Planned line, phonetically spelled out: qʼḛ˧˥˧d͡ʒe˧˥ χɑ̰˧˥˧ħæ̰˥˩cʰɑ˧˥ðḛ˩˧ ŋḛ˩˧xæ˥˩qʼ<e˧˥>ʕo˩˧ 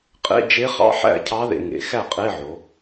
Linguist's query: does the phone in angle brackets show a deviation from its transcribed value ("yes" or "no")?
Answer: yes